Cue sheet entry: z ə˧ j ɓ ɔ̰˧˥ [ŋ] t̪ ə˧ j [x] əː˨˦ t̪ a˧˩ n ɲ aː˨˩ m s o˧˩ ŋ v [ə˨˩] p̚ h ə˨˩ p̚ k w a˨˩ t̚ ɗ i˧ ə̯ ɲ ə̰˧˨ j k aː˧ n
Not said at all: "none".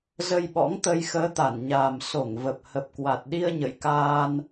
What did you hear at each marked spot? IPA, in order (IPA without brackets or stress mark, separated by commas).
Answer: ŋ, x, ə˨˩